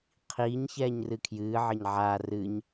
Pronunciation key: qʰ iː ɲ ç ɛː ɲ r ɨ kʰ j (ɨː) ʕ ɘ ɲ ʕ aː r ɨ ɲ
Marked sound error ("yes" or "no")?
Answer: no